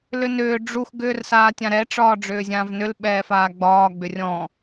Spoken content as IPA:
l ʏ n ʏː ɖ͡ʐ u x ɡ ʏː r s aː tʲ ã ɾ ɛ ʈ͡ʂ ɒː ɖ͡ʐ ʏː zʲ ãː v n ʏ l ɓ ɛː f aː ɡ͡b ɒː ɡ͡b ʏ rʲ ɔ̃

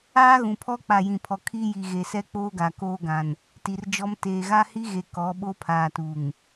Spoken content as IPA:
aː˦ ɣ ũ˨ pʰ ɔ˦ k͡p a˨ j ĩ˨ pʰ ɔ˨ kʰ iː˦ j i˨ ɣ e˨ s ɛ˦ k͡p oː˦ ɡ a˨ k oː˦ ɡ ã˨ n | t i˨ r d͡ʒ ɔ˦ m t eː˨ ɣ a˦ h i˦ ɣ e˨ k ɔ˨˦ ɓ o˦ pʰ aː˨ t u˨ ŋ

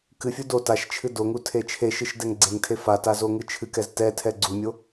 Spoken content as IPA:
k ɨ fʲ u d o t a ʃ t͡ʃʰ ɨ d o ŋ u tʰ e t͡ʃʰ e ʃ ɨ ʃ d ɛ ŋ ɡ͡ǀ e ŋ tʰ e f a t a z o ŋ ɨ t͡ʃʰ ɨ k ɛ z t ɛ tʰ ɛ ɡ͡ǀ u mʲ o

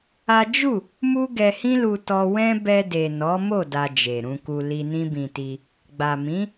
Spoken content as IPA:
a˦ d͡ʒ u˦˨ | m u˦ ɡ ɛ˧ h ĩ˦ l u˧ t ɔ˧ w ɛ̃˦ b ɛ˧ d e˨ n ɔ˨˦ m o˦˨ d a˧ d͡ʒ e˨ ɾ ũ˧ k u˧ l i˧ n ĩ˦ b ĩ˧ t i˧ | ɡ͡b a˨ m ĩ˨˦

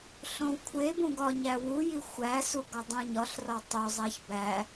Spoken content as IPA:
ɬ õ w kʷʰ e b ũ ɡ ɒ ɲ æ w u j i xʷ æ s u ɡ ɒ dˤ ũ ɲ ɒ ɬ r ɒ tˤ o zˤ æ ç b æ

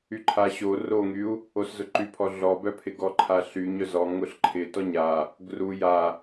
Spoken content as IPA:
y ǃʰ a ɕ o r o ŋ y u̯ | o s z ʊ ǃ y pʰ ɔ ɮ ɔ b œ pʰ ɪ ɡ ɔ ǃʰ a ɬ y ɲ œ z ɔ ŋ ʊ ɬ ǃʰ ɪ t ɔ ɲ a | ɡ r u j a

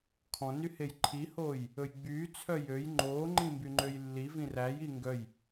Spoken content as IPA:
kʰ ɔ̃ n y h e j ǃʰ i h oː j | ɵ j ɡ͡b yː t͡sʰ œ j ø j ŋ͡ǃ oː ŋ͡ǃ ĩ m b y ŋ͡ǃ ø j lː i v ĩ r æ j i ŋ ɡ œ j

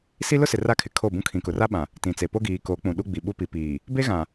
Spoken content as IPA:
s i˦ l ʊ˦ s ɪ˨ r a˦ kʰ ɪ˨ kʰ o˦˨ b ũ˦ kʰ ĩ˨ k ʊ˨ r a˦ ɓ ã˨ | t ĩ˨ t͡s e˨ p o˦ ɡ iː˨ k o˨˦ k͡p ũ˨ ɗ u˦ ɡ͡b i˨ ɓ u˦ p i˨ p iː˨ | b e˦ ɣ ã˨

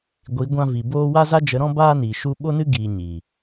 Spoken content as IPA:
ɡʷ i˨˦ ɡʷ ã˧ v i˨ b oː˧ w a˦ z a˦ d͡ʒ ə˨˦ ɾ ɔ̃˦ b aː˦ n iː˨ ʃ u˧ ɓ o˦ n ɨ˦ ɡ iː˨ ɲ i˨

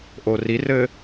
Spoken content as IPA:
ʔ o r i r ɘ

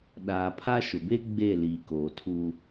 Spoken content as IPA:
ɗ aː˨ pʰ a˦ ʃ ʊ˨ b e˦ ɡ͡b e˦˨ l iː˨ k oː˨ tʰ u˦

